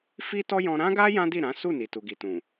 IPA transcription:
f i˦ t ɔ˦ j ɔ̃˧ ɾ ã˦ ɡ a˦ j ã˦ d i˦˨ ɾ ã˨˦ s u˦˨ n i˨ t u˨ ɡ i˨ t ũ˨

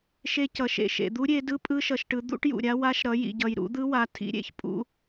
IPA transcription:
ʃ e˦˥ c ʌ˨ ʃ ḛ˨ ʃ ḛ˨ d̪ u˦˥ ɾʲ e˨˦ d ɯ˦˥ pʼ ɯ˦˥ ʃ ʌ˨ ʃ ʈ ɯ˨˦ d̪ ṵ˦˥ ʈ j ṵ˨ ɾʲ a˦˥ w a˦˥ ʃ ɾ ʌ˨˦ j ḭ˨ ɟ ʌ˨ j ɾ ṵ˨˦ d̪ ɯ˦˥ w a˨˦ tʰ ḭ˦˥ ɾʲ ḛ˨˦ ç pʼ ṵ˦˥

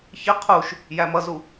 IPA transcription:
ç ɪ qʰ u ʃ | j æ m ʌ z u

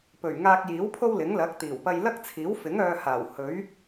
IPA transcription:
p ɵ˨˩ ɥ ŋ aː˧ k̚ j iː˨˥ w pʰ o˥ w l ɪ˨˥ ŋ l ɐ˨˥ k̚ t̪ iː˨˩ w p ɐ˧ j l ɐ˥ k̚ t͡sʰ iː˨˥ w f ɪ˨˥ ŋ œː˧ h aː˨˩ w h ɵ˨˥ ɥ

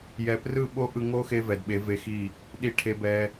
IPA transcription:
j ɛ˨ p r ɯ˦˨ ɓ o˦ ʔ ɯ˧ ŋ o˦ x e˧ v ɛ˨ d ɓ e˨˦ v e˧ x i˦˨ | ɗ i˧ ʈʰ e˧ b ɛ˧

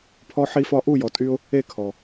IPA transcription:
pʰ ɔ˧ ħ i˧ f ɒ˧ ʔ u˦˨ j ɔ˨ tʼ y˧ ʊ̯ | e˦˨ kʰ ɔ˨

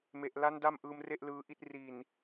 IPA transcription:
m e˨˩ ʔ l a˦˥ n d a˥˩ m ʔ ɯː˧ m r e˥˩ ʔ l ɯː˧ ʔ i˦˥ t̚ r i˨˩ n

